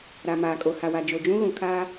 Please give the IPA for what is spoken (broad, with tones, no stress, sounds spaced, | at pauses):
ɾ a˨ m aː˨ kʼ o˨ h a˨ w a˨ d͡ʒ o˨ d͡ʒ ũ˦ ɣ ũ˨ kʰ aː˦